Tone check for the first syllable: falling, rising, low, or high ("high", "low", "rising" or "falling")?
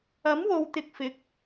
rising